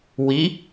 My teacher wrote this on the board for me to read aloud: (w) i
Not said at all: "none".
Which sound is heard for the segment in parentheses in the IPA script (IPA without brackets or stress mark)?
w